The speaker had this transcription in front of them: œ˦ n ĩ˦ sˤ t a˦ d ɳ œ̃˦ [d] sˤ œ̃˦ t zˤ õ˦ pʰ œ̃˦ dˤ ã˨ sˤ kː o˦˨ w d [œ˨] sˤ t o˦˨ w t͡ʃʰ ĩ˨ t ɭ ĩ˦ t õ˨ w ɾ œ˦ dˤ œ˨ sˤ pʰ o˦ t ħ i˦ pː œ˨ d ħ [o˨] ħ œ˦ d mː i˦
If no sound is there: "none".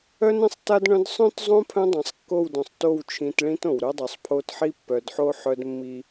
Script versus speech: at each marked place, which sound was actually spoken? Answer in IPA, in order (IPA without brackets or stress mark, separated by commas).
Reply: d, œ̃˨, o˦